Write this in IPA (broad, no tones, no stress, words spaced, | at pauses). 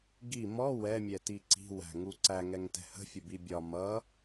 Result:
ɡi mɔ wɛmʲɛti ǀi̤wæ̤ŋu ǀæŋɛŋtɛ̤ hə̤fʲʊbi bʲɒ mʌ